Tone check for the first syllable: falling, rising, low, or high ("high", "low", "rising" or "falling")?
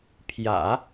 low